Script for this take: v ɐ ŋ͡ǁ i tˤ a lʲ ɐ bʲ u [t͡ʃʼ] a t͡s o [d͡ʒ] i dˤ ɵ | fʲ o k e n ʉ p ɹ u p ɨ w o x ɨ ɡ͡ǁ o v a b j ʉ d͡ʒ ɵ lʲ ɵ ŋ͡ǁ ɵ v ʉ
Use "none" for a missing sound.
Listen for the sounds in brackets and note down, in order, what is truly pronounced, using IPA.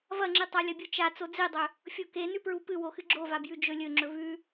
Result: t͡ʃ, d͡z

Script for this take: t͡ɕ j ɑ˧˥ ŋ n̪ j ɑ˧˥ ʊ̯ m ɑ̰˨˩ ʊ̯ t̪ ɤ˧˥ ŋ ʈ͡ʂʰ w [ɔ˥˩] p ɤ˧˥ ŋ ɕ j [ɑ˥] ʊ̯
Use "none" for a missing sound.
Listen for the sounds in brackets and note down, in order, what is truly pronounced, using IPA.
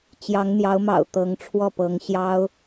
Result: ɔ˥˩, ɑ˥

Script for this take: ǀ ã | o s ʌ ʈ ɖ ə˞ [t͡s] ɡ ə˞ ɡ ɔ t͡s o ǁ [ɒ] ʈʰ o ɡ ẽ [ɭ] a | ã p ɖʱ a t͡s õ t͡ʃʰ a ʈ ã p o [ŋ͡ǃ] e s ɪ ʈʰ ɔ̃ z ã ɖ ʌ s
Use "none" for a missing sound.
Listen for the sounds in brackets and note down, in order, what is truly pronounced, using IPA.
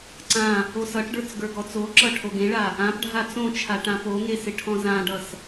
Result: t͡s, ʌ, ɭ, ŋ

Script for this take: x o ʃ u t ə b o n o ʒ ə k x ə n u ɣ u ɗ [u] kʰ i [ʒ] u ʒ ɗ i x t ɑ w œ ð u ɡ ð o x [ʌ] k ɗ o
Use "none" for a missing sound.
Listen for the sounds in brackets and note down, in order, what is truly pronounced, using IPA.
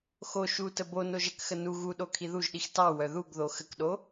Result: o, ð, ə

